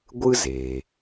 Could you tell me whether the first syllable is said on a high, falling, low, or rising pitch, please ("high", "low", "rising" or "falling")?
high